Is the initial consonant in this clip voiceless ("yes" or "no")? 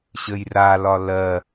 yes